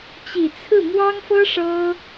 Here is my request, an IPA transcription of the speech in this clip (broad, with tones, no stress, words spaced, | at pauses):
t͡ɕi˨˩t͡sʰɹ̩˥˩ mwɑ˥ŋfɤ˥ ʂɤ˥